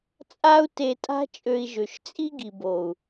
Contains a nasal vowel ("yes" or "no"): no